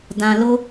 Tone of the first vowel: high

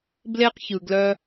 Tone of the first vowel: high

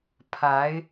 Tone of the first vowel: rising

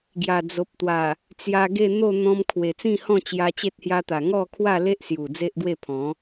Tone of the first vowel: low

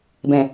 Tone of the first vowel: low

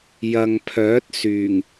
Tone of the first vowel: low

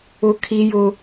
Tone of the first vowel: high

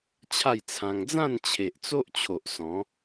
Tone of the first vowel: falling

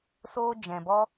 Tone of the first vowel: high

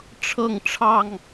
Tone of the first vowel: falling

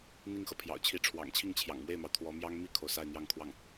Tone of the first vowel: falling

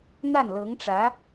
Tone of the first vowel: falling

